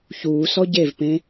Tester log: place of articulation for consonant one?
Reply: palatal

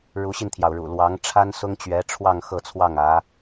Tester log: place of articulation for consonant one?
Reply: retroflex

